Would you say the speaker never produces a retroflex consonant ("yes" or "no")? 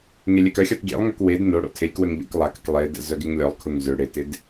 no